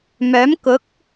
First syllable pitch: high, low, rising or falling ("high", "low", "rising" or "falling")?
rising